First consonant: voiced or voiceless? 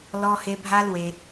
voiced